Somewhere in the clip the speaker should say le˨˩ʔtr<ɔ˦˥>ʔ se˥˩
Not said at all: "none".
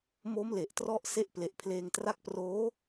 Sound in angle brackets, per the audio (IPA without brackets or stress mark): ɔ˦˥